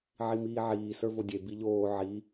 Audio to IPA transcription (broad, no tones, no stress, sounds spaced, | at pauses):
ʕ i m iː ʕ iː s ə˞ v o dʲ e b i ʎ oː ʕ i